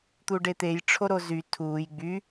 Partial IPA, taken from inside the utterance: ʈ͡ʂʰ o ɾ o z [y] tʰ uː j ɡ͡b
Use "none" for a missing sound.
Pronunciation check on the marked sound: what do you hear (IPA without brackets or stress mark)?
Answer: y